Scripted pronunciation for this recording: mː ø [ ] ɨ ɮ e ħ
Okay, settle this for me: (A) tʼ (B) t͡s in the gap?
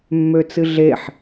B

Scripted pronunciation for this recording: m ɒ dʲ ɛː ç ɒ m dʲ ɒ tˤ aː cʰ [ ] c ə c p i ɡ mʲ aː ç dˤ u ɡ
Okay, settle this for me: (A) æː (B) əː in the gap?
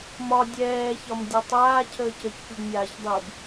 B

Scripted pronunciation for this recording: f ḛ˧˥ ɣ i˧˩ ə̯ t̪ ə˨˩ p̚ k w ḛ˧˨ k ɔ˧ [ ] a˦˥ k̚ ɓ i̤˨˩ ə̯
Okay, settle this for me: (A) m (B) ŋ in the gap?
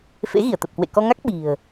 B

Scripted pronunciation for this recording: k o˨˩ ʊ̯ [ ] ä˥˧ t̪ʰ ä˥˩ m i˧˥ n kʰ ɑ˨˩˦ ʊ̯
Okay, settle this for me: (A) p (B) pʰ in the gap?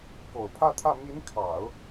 B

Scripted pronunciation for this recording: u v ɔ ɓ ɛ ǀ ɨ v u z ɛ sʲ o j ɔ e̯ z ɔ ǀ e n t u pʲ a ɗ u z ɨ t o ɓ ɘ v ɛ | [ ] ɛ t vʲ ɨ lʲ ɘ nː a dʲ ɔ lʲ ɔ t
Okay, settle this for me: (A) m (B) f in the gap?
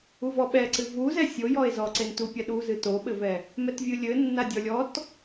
A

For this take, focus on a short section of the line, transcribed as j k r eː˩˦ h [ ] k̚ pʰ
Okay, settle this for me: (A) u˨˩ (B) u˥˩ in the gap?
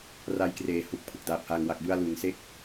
A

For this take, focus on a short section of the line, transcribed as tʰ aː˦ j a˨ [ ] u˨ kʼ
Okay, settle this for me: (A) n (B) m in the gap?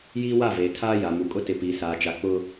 B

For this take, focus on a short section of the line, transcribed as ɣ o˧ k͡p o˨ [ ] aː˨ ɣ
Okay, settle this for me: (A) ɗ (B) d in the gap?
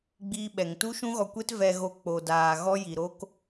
B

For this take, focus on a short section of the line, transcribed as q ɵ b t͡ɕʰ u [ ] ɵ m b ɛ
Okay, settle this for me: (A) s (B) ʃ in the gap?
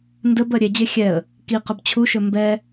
B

